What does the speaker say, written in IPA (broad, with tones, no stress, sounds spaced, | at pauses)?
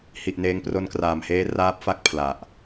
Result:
h i˨˩ ʔ n eː˧ ŋ p r o˦˥ n k r aː˨˩ m h eː˦˥ r aː˦˥ p̚ f a˥˩ k̚ pʰ l a˨˩ ʔ